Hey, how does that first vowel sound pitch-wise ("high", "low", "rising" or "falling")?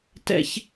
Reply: high